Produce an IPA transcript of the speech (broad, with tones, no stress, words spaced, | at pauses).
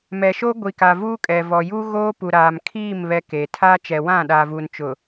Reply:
mɛ˨ʃo˦ɡʷi˨ka˨ vuː˦kʼɛ˨ vɔ˨juː˦ ɣoː˦pu˨ ɾaː˨mkʰiː˦˨m βɛ˦ke˨ tʰaː˦t͡ʃɛ˨ wã˦˨ɗaː˨vuː˨n t͡ʃʊ˨